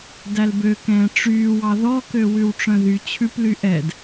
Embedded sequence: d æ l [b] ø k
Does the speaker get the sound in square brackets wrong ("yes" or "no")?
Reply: no